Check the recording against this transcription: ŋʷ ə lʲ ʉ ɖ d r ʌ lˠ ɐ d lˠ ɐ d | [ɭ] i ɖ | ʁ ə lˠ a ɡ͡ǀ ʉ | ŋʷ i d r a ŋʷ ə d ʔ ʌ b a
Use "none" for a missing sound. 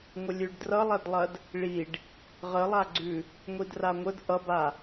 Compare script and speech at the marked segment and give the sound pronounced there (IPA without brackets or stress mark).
ɭ